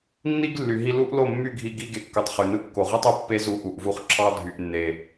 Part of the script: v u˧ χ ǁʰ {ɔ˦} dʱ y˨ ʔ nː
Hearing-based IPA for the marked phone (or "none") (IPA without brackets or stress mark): ɑ˦